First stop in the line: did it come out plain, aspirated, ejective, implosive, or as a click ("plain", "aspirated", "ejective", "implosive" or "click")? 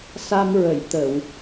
plain